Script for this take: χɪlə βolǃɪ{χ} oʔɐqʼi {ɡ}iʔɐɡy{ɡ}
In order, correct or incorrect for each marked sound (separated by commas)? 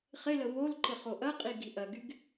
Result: correct, correct, correct